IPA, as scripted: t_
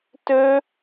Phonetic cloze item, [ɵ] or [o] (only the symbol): ɵ